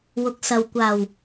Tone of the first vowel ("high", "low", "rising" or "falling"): low